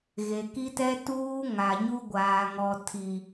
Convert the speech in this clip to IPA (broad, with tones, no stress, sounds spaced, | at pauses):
ɣ e˨ k i˦ t ɛ˦ t uː˦ ŋ a˨ ɲ u˦ ɡʷ aː˨ ŋ ɔ˨ tʰ i˨